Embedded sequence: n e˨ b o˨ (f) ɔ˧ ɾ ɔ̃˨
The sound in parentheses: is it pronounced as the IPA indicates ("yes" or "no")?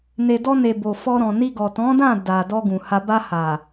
yes